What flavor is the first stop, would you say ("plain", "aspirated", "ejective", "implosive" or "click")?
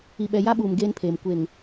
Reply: implosive